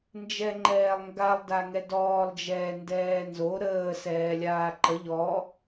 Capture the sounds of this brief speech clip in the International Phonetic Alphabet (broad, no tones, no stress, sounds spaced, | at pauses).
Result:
n d͡ʒ ɛ ŋ͡ǃ ɛː lˠ ŋ ɡ a lˠ d a ŋ ɛ d ɔː lˠ d͡ʒ ɛː n d ɛː n z o ɾ əː s ɛː lʲ aː ǃ ə ʎ ɔ